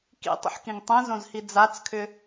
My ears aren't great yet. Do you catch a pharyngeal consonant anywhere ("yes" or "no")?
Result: yes